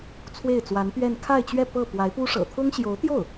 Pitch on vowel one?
falling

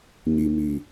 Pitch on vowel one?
low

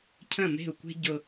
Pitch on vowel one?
falling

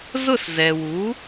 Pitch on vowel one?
falling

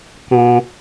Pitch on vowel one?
high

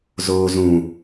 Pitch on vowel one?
low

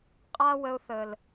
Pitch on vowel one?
high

